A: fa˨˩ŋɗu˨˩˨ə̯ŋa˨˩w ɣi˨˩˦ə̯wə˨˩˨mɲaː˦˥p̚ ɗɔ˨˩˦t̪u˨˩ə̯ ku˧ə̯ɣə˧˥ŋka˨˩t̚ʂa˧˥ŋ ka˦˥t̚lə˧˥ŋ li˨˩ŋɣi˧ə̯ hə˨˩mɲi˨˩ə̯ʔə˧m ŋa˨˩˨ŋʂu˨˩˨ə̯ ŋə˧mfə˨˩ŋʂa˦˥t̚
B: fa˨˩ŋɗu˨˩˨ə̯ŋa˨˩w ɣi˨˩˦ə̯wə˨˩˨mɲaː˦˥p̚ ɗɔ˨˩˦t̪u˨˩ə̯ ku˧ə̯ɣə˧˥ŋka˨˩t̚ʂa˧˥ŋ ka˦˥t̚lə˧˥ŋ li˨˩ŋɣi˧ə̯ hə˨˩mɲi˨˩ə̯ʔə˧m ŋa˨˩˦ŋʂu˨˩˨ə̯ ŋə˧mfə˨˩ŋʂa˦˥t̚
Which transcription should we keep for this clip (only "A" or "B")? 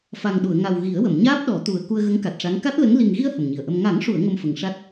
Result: B